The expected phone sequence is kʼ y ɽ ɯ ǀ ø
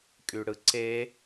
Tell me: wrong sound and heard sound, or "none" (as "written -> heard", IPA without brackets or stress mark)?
ø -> e